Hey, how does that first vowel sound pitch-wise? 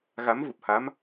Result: rising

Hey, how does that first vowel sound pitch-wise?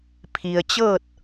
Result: low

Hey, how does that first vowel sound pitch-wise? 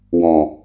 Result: low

